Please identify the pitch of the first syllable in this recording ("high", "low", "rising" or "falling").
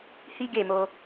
high